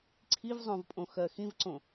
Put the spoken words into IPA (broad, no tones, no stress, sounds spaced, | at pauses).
ǀʰ i v zˤ õ v pʼ õ x ɜ x ĩ v ǀ õ